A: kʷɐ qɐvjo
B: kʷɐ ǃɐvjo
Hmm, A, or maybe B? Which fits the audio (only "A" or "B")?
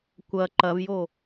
B